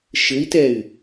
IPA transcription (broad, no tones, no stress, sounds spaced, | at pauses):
ʃ ɘ i̯ t ɛ y̯